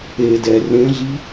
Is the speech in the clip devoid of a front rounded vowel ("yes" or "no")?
yes